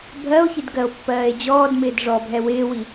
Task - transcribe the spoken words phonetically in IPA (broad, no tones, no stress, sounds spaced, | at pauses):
bʱ ɜ o̯ ç ɪ d ɡ ɜ o̯ pː ɜː e̯ d͡ʑ ɔː d m ɪː d ʐ ɔ bʱ ɛ w ɪː w i